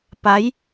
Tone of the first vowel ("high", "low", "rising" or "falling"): rising